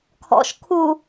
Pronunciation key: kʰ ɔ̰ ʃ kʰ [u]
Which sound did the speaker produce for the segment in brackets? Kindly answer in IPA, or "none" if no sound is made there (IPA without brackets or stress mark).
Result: u